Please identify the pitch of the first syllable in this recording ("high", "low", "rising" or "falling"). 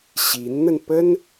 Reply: rising